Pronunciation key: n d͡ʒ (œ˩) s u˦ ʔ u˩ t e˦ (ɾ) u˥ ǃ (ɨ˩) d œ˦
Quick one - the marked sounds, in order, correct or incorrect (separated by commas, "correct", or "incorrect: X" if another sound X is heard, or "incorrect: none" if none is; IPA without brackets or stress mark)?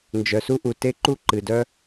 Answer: correct, incorrect: ǃ, correct